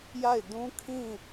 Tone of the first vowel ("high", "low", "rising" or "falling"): falling